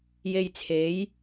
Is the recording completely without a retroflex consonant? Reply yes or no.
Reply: yes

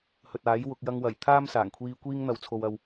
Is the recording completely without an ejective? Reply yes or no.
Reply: yes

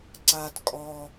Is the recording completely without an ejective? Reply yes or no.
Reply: no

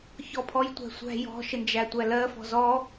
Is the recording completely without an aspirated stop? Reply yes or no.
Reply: no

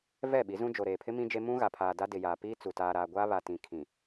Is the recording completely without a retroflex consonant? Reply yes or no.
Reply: yes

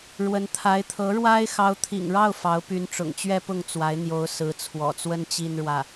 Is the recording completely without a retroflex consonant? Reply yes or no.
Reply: no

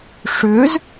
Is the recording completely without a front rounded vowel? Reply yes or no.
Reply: no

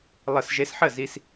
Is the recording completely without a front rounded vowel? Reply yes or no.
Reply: yes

